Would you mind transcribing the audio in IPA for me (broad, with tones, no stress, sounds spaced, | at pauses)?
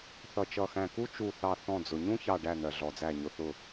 θ ʌ˧˩ t͡ʃ ʌ˧˩ x æ̃˧˩ k u˥ t͡ʃ u˧˩ θ ɑ˧˩ θ ɔ̃˧˩ d͡z ʊ˩ ɲ ũ˥ ç ɑ˧˩ ɖ æ˧˩ n̪ ɜ˩ ɮ ɔ˩ d͡z æ˧˩ ɲ ʊ˩ θ ʊ˧˩